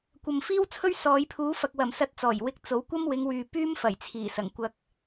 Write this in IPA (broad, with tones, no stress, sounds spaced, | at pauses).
kʷ ɐ˨ m f iː˥ w t͡sʰ ɵ˥ ɥ s ɔː˨˧ j pʰ uː˨˥ f ɐ˨ k̚ w ɐ˨˩ m s ɐ˧ t̚ t͡s ɔː˨˩ j w ɪ˧ k̚ t͡s o˨˥ w kʷ ɐ˥ m w ɪ˨˧ ŋ w yː˨ p yː˥ m f ɐ˨˩ j t͡sʰ iː˨˩ s ɐ˨˩ ŋ kʷ ɐ˧ k̚